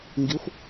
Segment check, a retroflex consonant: absent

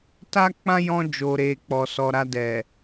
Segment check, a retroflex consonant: absent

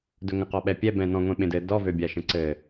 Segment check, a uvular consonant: present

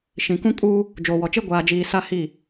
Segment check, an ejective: present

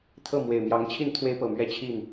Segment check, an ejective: absent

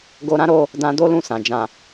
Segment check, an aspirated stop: absent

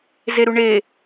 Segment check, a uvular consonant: absent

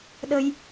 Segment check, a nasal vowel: absent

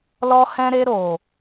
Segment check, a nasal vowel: present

